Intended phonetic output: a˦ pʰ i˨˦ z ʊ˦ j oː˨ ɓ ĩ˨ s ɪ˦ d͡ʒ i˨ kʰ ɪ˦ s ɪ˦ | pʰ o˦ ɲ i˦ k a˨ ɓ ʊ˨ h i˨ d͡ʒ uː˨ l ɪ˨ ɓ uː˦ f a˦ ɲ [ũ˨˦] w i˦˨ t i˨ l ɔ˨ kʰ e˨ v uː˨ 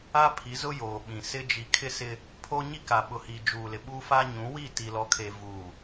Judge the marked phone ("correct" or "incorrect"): correct